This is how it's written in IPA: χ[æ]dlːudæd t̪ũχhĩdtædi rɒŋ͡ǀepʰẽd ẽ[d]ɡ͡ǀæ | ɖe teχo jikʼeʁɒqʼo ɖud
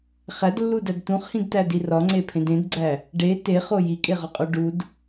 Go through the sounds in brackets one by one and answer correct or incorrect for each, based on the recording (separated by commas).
correct, correct